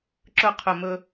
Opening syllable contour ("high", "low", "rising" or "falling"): falling